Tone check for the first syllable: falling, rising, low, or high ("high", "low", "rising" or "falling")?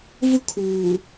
high